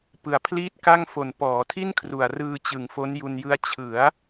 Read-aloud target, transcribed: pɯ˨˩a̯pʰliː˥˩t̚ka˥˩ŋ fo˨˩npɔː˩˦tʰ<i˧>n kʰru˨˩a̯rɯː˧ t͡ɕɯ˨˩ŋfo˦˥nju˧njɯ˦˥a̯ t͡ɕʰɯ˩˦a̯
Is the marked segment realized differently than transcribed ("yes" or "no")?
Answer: yes